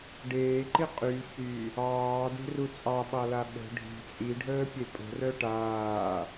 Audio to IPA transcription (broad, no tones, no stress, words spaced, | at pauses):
ɖeːǃi qʼy çy | ɑːde̤ru t͡sʼɑɓɑla ɓə̤ ɖʱi̤ t͡sʼiɖʱəːpʲe pʼə̤rœ ʈaː